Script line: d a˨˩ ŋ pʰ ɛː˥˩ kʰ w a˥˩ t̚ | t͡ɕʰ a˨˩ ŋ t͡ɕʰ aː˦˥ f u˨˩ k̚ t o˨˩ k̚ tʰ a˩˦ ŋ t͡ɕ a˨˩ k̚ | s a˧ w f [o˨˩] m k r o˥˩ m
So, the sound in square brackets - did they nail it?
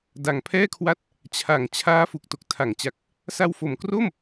yes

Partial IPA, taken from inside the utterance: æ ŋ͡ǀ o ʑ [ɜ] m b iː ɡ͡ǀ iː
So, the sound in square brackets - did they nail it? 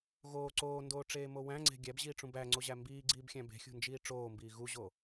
no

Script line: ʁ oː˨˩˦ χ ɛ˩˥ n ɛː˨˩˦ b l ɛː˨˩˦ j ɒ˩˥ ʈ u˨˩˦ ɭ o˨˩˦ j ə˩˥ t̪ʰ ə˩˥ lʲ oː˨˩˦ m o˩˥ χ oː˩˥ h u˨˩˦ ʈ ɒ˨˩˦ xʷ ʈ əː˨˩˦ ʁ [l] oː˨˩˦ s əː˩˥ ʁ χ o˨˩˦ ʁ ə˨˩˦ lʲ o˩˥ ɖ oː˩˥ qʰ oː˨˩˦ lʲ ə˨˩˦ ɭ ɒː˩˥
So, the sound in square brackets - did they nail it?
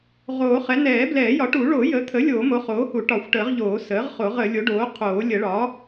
no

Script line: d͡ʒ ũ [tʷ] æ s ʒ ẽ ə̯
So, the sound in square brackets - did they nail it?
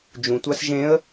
yes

